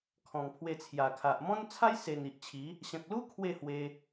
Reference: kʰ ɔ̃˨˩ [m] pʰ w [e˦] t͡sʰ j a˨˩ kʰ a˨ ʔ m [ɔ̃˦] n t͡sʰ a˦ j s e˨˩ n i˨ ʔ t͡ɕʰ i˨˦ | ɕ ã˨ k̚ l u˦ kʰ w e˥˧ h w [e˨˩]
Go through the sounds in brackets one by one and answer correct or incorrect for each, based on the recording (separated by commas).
incorrect, incorrect, correct, incorrect